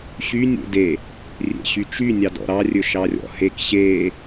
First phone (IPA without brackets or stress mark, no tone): ɕ